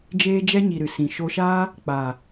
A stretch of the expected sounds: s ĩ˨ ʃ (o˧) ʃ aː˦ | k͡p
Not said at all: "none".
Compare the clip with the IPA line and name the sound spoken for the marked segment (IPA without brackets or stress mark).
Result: o˧